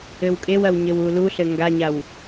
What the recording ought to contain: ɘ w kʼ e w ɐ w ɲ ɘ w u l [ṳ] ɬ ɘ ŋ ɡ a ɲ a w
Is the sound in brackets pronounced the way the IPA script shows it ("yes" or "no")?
no